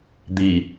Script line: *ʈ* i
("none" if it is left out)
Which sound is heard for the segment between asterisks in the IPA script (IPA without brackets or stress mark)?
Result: d̪